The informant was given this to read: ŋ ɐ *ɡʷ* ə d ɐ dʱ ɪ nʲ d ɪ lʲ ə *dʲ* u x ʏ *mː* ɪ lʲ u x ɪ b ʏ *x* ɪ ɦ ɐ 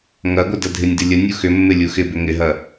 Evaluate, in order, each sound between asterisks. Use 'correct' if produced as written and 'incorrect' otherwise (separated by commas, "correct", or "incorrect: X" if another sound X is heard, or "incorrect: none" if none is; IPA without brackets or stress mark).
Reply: correct, incorrect: nʲ, correct, incorrect: ŋ